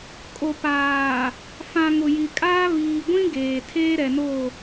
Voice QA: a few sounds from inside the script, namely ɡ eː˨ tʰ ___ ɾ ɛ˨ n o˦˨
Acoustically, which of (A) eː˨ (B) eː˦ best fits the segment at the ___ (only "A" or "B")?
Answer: B